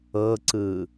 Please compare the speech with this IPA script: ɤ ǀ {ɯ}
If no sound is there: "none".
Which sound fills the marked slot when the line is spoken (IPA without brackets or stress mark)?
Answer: ɯː